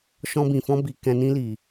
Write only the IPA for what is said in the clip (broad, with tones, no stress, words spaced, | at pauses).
ʃɔ̃˧bĩ˨fɔ̃˧ bi˨kɛ̃˨nĩ˧li˨